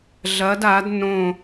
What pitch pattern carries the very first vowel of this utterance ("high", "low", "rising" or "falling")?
rising